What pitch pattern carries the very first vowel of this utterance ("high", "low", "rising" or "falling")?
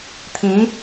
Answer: rising